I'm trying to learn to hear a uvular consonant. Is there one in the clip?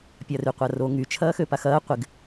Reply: yes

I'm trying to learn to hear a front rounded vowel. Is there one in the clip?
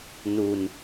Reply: no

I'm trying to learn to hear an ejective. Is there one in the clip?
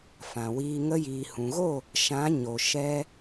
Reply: no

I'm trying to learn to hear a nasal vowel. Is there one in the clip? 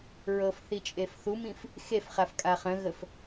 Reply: yes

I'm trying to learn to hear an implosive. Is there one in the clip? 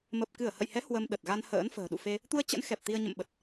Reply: yes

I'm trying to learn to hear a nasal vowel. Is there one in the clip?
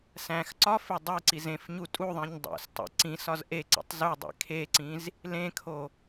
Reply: yes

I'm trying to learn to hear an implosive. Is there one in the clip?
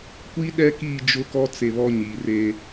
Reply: yes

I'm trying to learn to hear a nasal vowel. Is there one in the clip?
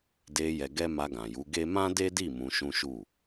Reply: yes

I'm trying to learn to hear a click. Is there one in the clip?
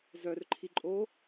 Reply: yes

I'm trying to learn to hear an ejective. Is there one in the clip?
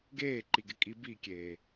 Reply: yes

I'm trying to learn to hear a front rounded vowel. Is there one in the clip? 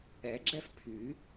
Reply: yes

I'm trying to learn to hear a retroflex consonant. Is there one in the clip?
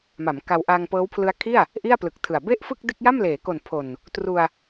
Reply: no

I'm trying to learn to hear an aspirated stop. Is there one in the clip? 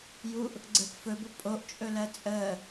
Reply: no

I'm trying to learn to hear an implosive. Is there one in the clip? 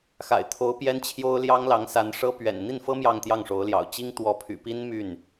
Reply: no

